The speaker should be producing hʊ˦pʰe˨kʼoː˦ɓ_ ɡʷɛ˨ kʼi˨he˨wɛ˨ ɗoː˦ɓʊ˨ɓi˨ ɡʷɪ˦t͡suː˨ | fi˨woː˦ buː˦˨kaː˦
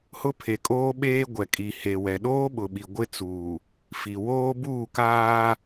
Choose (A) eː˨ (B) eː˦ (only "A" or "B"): B